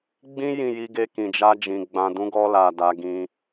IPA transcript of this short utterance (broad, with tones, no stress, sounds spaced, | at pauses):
ɡ͡b ĩ˦ j ĩ˦˨ j i˧ ɡ e˧ k ĩ˨ d͡ʒ a˧ d͡ʒ ĩ˨ ɡ͡b ã˨ d ũ˨˦ ɡ ɔ˧ l a˨ d a˨˦ ɡ ĩ˧